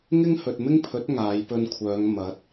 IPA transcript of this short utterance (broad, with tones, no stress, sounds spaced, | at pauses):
ŋ ɪ˥ ŋ h ɵ˨ t̚ m ɪ˥ ŋ pʰ ɵ˨˥ t̚ ŋ aː˨˧ j p ɵ˧ n kʷʰ œː˨˧ ŋ m ɐ˨˥ t̚